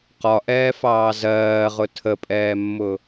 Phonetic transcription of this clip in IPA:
q ɒ ʔ ɛː f ɑː z ɜː ʁ ʊ tʰ ə pʼ ɛː mː ʊ

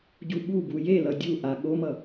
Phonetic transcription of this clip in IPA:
ɟ u ɓ u b u j e l ʌ dʲ u ʔ a ɠ o m ʌ

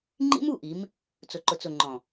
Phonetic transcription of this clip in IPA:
ŋ͡ǃ ḭ˦ m u˦˨ ʔ i˨˦ m | t͡s ʊ˨ ǃ ʊ˨ t͡s ʊ˨ ŋ͡ǃ ɔ̃˨

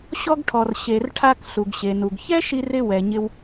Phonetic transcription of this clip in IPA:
ɕ ɔ˧ ɡ ʈʰ ɔ˩ r ɕ e˩ r ʈʰ a˧ k ɬ u˩ ɡ ɕ e˩ n u˩ ɡ ç ɛ˥ ʃ i˧ r ɪ˧ w ɛ˩ ɲ ɪ˧ w

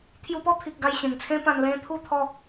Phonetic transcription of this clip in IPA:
t̪ʰ j u˧ p ɔ˥˧ t̪ʰ i˨ k̚ ɡ a˧ j ɕ ẽ˨˩ ŋ t͡sʰ ẽ˦ p ã˧ n l ẽ˦ t̪ʰ u˥˧ t̪ʰ ɔ˥˧

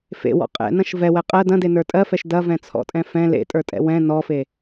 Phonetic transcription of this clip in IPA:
f ḛ w ɔ̰ qʼ ɛ̰ n ɐ̃ ʃ v ɛ w ɛ qʼ ɜ d ɐ̃ d e n ə˞ tʼ ɜ f ɛ ʃ d ɐ v ɛ̃ t͡sʰ ɔ̰ tʼ ɛ̃ f ɛ̃ l ḛ tʼ ə˞ tʼ ɛ̰ w ɛ̃ n ɔ f e

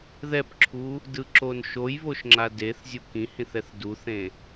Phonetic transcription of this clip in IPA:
ð ɛ p ǁʰ u | d ɯ ǁ o n ʃ o j β o ʃ ŋ͡ǁ a d e θ zʲ u k ĩ h ĩ θ ɛ θ d u θ ẽ

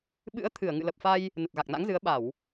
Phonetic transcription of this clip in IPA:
ɓ ɨ̰˧˥ ə̯ t̪ʰ ɨ˧˩ ə̯ ŋ ɨ̰˧˨ l ə˨˩ p̚ f a˧ j | n ə˨˩ t̚ ɣ a˨˩ k̚ n a̰˧˥ ŋ z ɨ˨˦ ə̯ ɓ a˧˩˨ w

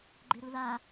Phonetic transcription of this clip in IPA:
ɡ͡ǃ e ɾ ɯ ð a

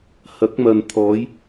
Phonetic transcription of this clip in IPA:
h ɐ˨˥ k̚ m ɐ˨ n t̪ʰ ɔː˨˧ j

